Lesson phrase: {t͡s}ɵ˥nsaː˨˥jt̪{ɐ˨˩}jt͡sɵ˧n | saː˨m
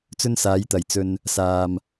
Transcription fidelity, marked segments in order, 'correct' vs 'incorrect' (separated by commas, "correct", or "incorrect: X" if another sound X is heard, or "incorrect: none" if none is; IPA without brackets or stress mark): correct, correct